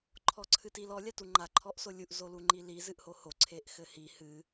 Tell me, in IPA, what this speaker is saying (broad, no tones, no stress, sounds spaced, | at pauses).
ǃʰ ɔ ǀʰ ɨ t i l ɔ lʲ a t u ŋ͡ǃ a ǃʰ ɔ ʔ s o lʲ u ʔ z o l u ŋ͡ǃ i l i z ɨ ʔ h o h o ǀʰ e ʔ x ɘ h i h ɨ